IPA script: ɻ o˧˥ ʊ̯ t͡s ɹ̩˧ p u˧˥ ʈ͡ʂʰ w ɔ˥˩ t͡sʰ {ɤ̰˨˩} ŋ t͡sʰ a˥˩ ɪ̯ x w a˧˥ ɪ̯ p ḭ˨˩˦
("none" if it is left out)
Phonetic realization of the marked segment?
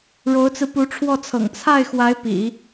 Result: ɤ̰˨˩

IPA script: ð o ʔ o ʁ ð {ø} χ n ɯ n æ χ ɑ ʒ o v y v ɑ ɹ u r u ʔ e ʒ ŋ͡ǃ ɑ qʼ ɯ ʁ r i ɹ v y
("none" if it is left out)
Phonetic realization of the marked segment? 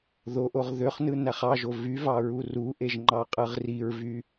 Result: ø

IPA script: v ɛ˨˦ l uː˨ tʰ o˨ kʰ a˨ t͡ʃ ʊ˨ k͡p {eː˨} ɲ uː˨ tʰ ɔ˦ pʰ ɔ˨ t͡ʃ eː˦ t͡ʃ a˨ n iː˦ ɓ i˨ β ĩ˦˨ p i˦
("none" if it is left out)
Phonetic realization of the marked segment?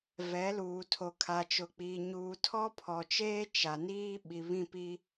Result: iː˨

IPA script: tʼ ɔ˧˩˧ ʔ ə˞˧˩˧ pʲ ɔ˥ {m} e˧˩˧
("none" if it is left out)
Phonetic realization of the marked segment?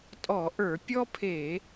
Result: pʰ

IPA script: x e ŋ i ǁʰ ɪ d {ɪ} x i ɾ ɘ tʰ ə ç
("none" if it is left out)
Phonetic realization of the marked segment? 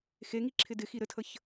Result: ɪ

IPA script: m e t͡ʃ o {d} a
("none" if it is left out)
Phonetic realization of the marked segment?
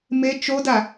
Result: d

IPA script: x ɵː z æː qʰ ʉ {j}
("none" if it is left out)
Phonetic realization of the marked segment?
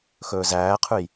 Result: j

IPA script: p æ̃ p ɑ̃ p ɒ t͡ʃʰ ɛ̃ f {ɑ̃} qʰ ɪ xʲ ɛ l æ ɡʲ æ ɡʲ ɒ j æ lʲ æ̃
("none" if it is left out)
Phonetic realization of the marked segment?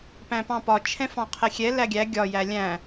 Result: ɑ̃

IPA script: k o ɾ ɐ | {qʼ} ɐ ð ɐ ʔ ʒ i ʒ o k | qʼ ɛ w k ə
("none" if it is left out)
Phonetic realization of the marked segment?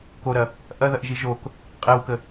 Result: ʔ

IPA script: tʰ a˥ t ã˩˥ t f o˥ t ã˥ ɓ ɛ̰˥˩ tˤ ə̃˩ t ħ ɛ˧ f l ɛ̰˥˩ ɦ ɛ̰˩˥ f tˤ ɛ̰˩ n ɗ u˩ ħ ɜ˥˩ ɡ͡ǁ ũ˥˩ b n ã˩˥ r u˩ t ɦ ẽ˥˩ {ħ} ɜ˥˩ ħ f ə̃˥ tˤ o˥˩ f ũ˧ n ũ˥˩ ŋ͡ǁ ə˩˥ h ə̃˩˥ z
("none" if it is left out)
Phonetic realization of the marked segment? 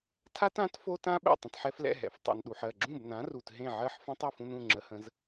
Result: ʕ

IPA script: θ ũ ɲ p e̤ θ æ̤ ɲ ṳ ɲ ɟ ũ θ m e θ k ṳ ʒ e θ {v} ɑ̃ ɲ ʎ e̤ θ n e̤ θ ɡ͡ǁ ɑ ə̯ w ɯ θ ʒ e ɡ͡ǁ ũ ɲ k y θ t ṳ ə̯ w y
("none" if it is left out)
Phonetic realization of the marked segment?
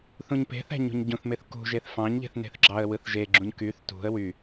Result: f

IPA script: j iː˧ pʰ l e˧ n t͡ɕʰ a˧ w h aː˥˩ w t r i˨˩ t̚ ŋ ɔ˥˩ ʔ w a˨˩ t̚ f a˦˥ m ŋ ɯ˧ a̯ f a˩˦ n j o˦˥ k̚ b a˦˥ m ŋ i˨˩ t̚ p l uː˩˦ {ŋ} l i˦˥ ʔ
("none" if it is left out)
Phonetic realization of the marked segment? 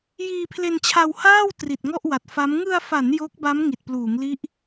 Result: ŋ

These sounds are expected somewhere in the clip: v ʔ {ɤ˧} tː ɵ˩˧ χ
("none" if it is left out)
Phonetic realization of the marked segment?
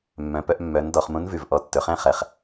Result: ɔ˧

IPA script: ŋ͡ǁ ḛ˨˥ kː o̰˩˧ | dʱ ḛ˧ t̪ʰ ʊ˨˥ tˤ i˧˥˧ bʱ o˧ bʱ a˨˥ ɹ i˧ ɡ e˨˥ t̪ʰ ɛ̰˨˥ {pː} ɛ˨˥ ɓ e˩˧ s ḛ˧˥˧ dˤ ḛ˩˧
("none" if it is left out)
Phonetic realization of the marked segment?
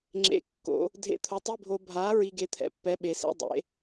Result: pː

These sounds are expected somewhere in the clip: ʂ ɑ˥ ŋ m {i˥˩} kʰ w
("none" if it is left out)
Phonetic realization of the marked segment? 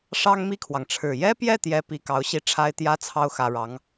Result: i˥˩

